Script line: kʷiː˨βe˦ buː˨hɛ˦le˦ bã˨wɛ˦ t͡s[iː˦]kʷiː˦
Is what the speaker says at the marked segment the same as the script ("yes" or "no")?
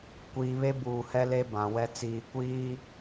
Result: no